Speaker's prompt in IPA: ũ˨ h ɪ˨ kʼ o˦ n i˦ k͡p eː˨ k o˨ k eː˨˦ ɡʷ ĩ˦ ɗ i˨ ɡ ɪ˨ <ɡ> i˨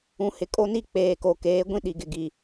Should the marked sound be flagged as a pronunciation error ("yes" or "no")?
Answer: no